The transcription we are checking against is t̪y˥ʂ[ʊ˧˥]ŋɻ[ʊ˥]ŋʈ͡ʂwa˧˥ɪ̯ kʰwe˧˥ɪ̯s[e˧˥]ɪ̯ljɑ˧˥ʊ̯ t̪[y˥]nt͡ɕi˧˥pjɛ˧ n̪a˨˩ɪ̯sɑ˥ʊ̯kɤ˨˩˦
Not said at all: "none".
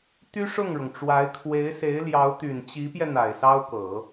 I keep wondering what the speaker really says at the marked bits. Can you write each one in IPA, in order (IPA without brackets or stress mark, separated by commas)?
ʊ˥˩, ʊ˩, e˧˥, y˨˩